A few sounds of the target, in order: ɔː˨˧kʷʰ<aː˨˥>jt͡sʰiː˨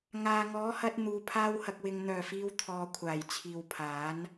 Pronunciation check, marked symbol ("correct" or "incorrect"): incorrect